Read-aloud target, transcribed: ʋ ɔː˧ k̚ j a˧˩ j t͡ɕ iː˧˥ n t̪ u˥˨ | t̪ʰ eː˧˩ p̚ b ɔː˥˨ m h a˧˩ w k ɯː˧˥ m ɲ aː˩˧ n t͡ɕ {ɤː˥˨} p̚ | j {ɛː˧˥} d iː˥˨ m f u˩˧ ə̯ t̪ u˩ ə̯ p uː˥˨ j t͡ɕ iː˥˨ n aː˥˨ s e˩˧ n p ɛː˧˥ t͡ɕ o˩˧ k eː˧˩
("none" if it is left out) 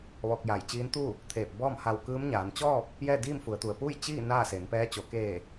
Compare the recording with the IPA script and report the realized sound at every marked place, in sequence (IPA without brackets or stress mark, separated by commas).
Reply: ɔː˥˨, ɛː˥˨